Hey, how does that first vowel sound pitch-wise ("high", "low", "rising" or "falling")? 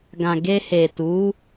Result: low